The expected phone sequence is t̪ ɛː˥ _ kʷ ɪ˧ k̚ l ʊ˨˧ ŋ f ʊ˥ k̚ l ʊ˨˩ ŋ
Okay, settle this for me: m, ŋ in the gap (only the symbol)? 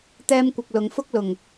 m